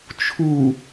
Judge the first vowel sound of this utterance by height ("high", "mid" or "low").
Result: high